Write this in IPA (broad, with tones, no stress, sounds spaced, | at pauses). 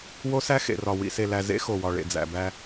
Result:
w o˦ s æ˦ x ḛ˨ r ɒ˨ w ḭ˨ s e˨ l æ˨ z ḛ˦ x o˨ w ɒ˨ ɭ ḛ˨ d͡z æ̰˨ b æ˦